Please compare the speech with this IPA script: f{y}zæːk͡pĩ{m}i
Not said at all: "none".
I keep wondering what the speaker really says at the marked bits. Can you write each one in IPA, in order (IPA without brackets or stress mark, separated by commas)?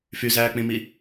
y, m